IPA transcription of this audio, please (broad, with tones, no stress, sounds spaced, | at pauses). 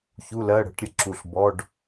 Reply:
ç u˧˥˧ l ɜ˧˥˧ ɽ ə̤˧˥ ʈ ɾʲ ə˧ ǁ u˧˩ ɬ b ɔ˧˥˧ ɖ